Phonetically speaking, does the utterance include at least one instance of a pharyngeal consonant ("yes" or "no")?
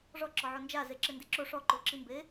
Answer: yes